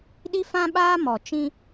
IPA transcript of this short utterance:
ɗ i˦ f ã˦ ɓ aː˦ m ɔ˨ t͡ʃ ĩ˦

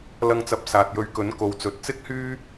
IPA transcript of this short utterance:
l ɐ˧ ŋ t͡s ɐ˨˥ p̚ s aː˨ t̚ j ɵ˧ ɥ k ɵ˨˥ n k o˨ w t͡s ɵ˨ t̚ t͡s ɪ˥ k̚ h yː˥

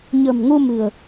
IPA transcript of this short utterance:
ɲ ə̤˨˩ m ŋ u˧ m ɨ̤˨˩ ə̯

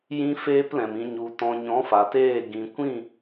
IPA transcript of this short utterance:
j ĩ˦ f eː˦ p l ɛ̃˨ m ĩ˧ ɲ u˨ t ɔ̃˨ ɲ ɔ̃˨˦ f a˨ t eː˦˨ ɡ ĩ˨ kʷ ĩ˦˨

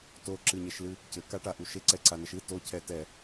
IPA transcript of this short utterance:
t o ǁ ɨ ɲ ɛ ʃ l ɨ | c ɘ k a ʈ a ʔ u ʃ e ǀ ɛ ǀ a n ɐ ʃ ɨ t o cʰ ɛ t ɛ

